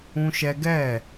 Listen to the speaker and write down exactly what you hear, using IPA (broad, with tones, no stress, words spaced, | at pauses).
ũ˦ʃɛ˦ ɡɛ˦˨